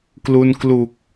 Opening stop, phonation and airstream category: plain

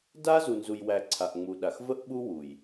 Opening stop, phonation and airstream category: plain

